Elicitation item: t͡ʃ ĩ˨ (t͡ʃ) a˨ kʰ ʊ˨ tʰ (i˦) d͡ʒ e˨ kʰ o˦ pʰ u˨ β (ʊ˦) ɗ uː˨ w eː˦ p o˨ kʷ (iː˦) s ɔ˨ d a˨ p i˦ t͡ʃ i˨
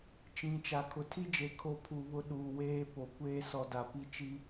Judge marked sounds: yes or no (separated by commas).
yes, yes, yes, no